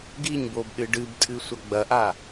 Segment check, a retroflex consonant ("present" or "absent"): present